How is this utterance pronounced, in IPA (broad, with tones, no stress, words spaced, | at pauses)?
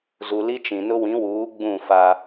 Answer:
zu˨li˦t͡ʃĩ˨nʊ˦ wĩ˨˦wuː˨˦ ɡ͡bũ˦˨fa˦